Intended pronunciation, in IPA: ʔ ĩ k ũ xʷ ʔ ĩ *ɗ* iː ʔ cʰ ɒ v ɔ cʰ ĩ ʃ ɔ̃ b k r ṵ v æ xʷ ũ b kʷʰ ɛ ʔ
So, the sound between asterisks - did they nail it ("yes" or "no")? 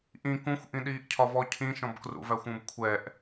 yes